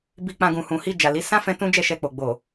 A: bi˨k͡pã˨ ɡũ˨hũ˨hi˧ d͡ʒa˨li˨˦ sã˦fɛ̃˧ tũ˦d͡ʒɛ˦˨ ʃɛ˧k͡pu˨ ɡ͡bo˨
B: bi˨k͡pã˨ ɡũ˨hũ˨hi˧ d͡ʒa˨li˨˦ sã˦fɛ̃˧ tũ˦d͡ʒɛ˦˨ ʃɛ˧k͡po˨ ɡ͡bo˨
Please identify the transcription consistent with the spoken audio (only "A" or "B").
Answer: B